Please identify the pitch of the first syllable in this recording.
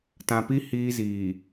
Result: low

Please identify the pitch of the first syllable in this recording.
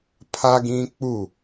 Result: high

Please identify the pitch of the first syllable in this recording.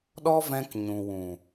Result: high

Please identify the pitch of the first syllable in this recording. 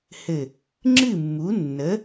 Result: low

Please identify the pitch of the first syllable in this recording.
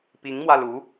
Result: rising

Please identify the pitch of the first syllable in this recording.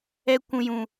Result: high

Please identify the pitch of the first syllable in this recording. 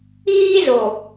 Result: high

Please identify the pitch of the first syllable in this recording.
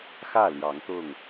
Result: falling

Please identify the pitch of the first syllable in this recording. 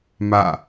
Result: falling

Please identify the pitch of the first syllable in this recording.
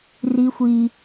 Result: high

